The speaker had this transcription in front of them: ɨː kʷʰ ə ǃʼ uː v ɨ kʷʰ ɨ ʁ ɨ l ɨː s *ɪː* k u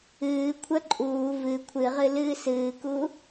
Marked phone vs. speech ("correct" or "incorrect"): incorrect